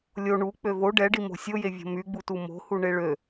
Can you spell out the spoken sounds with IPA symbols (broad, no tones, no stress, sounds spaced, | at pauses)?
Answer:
lʲ o ɳ u k͡p ø v o ɖ ɛ ɖ i m o̤ sʲ o j e vʲ o̤ m y ɡ͡b u t u m o̤ h u ɳ e ɭ ø